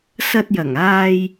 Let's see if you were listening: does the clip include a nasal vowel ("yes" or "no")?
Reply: no